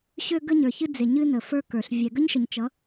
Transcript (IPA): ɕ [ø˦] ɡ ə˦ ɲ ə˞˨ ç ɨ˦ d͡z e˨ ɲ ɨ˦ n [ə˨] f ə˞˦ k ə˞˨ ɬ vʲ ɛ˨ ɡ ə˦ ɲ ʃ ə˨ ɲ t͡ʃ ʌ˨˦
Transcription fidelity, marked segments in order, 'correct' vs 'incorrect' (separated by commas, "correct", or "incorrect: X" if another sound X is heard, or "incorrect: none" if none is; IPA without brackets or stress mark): correct, correct